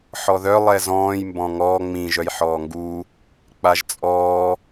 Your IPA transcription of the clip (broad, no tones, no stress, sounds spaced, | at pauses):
ħ ɔ ð œ lˠ ɛ z ɔ̃ː j m b ɔ̃ ŋ ɔː ŋ͡m ĩ ʒ œ j ħ ɔː ŋ ɡ u | k͡p a ʒ t͡sʼ ɔː